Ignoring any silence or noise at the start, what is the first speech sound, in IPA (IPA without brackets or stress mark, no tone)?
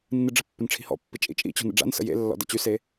nː